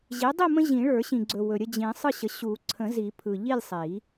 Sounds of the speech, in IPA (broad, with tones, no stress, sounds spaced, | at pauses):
ʑ i˩˥ dˤ i˥˨ m ə̃˦ ʑ ĩ˨˩˦ ɭ ə˞˨˩˦ ɕ ĩ˨ ɡ͡ǀ ɵ˨ w ɵ˨ ɾʲ ə˥˨ d͡ʑ ĩ˨˩˦ sˤ ɯ˥˨ ɕ ə˩˥ ɕ u˨˩˦ ǀʰ ə̃˨˩˦ z i˨˩˦ pʰ ɯ˨ ʎ i˥˨ lʲ sˤ i˨˩˦